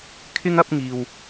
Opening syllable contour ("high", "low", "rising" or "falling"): high